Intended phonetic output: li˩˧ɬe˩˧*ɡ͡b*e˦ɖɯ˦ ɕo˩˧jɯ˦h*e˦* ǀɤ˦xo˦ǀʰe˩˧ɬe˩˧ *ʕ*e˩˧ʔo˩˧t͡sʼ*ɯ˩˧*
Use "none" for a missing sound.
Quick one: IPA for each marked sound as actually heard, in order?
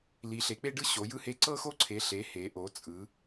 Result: k͡p, e˦, h, ɯ˩˧

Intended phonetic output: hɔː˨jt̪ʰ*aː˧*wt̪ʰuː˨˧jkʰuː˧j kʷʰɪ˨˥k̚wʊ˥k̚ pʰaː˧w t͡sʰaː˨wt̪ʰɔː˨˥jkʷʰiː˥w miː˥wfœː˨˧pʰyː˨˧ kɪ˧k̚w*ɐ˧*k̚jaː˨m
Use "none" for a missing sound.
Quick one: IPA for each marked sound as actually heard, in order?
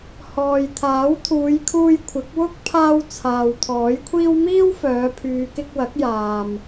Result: aː˨˥, ɐ˨˥

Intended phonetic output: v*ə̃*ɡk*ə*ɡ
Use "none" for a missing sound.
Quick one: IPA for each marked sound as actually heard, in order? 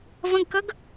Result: ə̃, ə

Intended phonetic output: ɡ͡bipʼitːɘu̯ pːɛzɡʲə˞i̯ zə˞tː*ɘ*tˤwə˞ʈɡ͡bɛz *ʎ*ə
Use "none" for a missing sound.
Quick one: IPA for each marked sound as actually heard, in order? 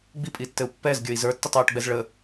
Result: ɘ, ɭ

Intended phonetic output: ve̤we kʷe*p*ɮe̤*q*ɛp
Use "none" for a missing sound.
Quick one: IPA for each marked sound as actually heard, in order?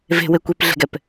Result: p, ɡ

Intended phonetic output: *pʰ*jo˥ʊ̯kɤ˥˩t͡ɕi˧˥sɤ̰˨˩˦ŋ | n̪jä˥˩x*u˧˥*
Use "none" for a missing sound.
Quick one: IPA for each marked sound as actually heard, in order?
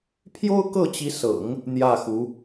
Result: pʰ, u˧˥

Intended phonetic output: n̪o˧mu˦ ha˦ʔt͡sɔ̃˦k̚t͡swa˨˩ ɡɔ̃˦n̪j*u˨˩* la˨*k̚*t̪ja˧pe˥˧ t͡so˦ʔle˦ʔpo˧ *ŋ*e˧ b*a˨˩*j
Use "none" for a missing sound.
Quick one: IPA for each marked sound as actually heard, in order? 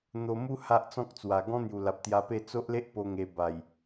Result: u˨˩, p̚, ŋ, a˨˩

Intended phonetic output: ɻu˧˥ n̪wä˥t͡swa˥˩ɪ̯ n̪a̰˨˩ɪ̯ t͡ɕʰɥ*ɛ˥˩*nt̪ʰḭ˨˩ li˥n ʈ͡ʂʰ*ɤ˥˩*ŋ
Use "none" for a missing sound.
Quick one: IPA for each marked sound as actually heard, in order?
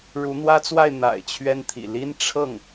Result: ɛ˥, ɤ˥˩

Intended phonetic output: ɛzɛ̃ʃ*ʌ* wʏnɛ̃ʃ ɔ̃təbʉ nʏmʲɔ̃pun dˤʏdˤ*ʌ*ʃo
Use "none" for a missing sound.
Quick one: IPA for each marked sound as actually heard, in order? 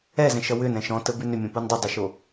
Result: ʌ, ə

